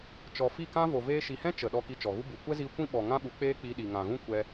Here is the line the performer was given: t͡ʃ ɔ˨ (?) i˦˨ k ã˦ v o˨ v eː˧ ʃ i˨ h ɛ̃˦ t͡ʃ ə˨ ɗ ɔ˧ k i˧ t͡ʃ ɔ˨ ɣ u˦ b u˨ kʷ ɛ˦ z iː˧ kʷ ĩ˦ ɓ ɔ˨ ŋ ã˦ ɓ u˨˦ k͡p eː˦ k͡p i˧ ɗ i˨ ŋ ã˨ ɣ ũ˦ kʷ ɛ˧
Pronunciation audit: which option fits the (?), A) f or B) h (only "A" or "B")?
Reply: A